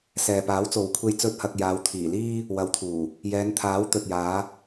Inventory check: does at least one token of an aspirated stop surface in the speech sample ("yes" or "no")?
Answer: yes